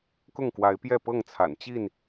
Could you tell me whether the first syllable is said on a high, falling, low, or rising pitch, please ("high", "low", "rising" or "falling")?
falling